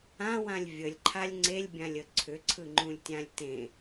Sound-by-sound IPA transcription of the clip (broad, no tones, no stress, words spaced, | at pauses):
ãwãlʲ vʲəlʲǃʰalʲ ŋ͡ǀelʲbʲãlʲə ǀʰʏǀʰɯŋ͡ǃũlʲtʲãlʲ tẽ